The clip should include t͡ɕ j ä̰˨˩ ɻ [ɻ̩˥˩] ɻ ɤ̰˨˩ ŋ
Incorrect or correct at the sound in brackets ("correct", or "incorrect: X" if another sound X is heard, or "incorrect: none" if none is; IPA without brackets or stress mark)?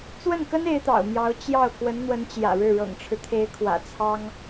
correct